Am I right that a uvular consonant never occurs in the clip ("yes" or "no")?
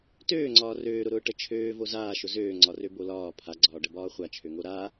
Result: no